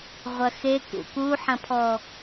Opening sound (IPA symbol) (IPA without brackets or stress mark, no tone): ʁʷ